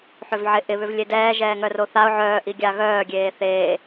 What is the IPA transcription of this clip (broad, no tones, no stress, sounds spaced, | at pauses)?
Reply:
ħ ʏ v ʕ ɪ ʔ ɪ β ʏ v lʲ e d ɛː ʒ ɛː ŋ œ r o θ a ʊ̯ ʕ œː ʔ i ɡʲ a ɣ œː ɡʲ eː θ eː